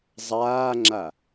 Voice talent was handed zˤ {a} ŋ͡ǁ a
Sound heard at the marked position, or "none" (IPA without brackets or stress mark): aː